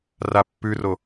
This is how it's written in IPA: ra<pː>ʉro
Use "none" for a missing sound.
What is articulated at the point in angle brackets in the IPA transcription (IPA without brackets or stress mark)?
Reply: pː